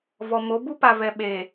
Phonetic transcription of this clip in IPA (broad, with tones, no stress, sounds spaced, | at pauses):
v ɔ˨ m o˨˦ b u˦ p a˨ v ɛ˨ ɓ e˨